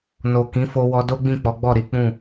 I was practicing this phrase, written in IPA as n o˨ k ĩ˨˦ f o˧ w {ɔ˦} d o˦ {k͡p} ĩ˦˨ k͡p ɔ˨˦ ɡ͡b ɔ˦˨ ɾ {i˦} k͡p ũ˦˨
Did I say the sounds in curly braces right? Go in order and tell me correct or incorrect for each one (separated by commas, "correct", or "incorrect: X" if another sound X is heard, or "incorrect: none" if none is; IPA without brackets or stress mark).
incorrect: ɔ˧, incorrect: ɡ͡b, incorrect: i˨˦